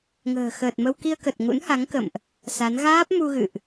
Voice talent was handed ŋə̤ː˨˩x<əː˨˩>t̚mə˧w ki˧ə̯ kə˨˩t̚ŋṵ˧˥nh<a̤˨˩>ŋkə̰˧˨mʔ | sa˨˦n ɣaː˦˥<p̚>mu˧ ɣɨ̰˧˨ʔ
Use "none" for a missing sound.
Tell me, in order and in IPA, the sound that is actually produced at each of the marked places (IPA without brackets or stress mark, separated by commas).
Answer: əː˨˩, a˨˦, p̚